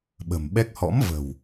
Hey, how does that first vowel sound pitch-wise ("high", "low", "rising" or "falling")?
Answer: low